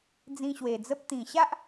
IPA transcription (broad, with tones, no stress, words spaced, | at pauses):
d͡zĩ˧ɕwe˨˩d͡zə˦p̚ t̪ĩ˨˩ɕa˦ʔ